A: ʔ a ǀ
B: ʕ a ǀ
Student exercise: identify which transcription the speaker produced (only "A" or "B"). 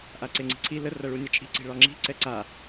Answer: A